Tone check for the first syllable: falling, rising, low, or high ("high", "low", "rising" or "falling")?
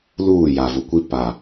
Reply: falling